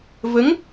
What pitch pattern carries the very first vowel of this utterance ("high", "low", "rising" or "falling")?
rising